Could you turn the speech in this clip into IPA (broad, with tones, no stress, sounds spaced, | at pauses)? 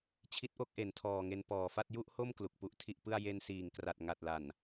t͡ɕʰ i˦˥ t̚ ʔ o˥˩ k̚ ʔ e˩˦ n tʰ ɔː˨˩ ŋ e˧ n p ɔː˨˩ f a˥˩ t̚ j u˥˩ ʔ h o˥˩ m k l u˨˩ k̚ p u˥˩ ʔ tʰ i˥˩ ʔ p ɯ˥˩ a̯ j e˧ n s iː˨˩ ŋ k r a˨˩ t̚ ŋ a˨˩ t̚ l a˨˩ n